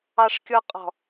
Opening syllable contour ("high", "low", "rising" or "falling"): high